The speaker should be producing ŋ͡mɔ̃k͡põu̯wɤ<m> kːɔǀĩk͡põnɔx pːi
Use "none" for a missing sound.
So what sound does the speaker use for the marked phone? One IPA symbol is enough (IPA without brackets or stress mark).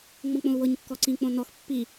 ɲ